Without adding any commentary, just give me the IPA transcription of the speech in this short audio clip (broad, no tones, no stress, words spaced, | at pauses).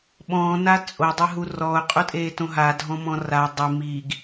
ɓɔ̃ːna t͡sʼodˤɛɦu rɔʊ̯qʼutʼeːtõ ɦadʱɔ̃mɔ̃ ra dˤɪ miːɡ